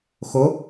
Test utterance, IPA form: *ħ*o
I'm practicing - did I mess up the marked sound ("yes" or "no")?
yes